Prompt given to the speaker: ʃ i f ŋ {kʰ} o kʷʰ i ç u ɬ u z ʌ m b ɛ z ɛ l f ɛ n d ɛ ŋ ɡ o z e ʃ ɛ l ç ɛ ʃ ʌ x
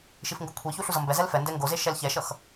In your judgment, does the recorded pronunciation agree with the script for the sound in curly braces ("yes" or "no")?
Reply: no